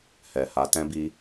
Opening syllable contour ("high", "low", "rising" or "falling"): low